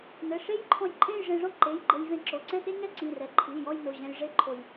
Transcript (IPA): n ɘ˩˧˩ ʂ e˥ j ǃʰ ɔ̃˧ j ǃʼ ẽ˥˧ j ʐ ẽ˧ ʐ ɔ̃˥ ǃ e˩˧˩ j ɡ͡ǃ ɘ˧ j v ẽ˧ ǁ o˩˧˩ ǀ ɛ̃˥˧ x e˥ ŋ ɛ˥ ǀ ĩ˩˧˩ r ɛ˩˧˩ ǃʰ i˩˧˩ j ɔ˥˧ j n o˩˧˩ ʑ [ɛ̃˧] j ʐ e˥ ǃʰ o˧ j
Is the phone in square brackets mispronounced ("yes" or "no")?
no